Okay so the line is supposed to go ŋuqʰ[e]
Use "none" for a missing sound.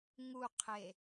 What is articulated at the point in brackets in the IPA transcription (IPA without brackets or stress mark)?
e